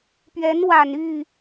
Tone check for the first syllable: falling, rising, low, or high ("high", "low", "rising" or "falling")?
rising